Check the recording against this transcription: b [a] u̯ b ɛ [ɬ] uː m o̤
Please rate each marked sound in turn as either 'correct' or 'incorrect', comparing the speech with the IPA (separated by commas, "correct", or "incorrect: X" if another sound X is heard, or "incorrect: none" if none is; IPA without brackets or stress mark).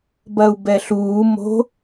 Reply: incorrect: ɐ, correct